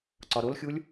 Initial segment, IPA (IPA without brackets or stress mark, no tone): ǀ